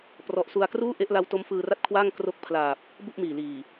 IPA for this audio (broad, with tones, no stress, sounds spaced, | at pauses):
p r ɔ˨˩ ʔ s u˧ a̯ k r uː˥˩ ʔ e˦˥ ʔ l a˦˥ w t o˦˥ m f ɯː˧ r a˥˩ t̚ kʰ w aː˥˩ ŋ k r o˦˥ k̚ pʰ l aː˨˩ p̚ | b u˥˩ ʔ m iː˨˩ l iː˨˩